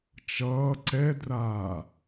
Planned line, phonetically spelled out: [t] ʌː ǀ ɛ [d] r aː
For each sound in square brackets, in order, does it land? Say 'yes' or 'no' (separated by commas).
no, yes